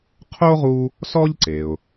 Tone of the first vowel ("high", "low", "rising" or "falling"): high